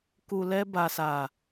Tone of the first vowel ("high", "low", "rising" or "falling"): low